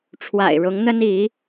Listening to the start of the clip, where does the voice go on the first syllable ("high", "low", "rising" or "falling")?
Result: low